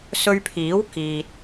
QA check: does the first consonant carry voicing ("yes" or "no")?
no